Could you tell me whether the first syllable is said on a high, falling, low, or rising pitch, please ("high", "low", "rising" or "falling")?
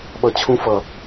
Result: low